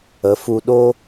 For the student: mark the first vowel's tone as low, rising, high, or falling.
rising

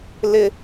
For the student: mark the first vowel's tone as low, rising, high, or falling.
high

